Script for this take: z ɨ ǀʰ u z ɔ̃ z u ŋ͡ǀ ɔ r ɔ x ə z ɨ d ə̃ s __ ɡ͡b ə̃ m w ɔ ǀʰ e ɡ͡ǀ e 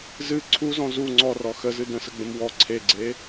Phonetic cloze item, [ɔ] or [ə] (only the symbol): ə